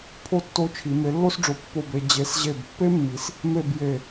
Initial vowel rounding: rounded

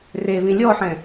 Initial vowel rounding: unrounded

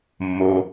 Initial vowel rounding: rounded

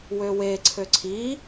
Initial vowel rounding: rounded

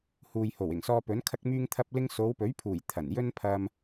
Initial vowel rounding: rounded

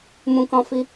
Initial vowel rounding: rounded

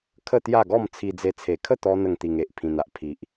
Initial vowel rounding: unrounded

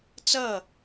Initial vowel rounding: unrounded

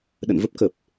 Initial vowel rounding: unrounded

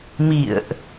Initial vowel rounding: unrounded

